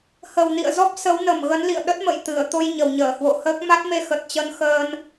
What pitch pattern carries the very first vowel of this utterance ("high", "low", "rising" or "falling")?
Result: low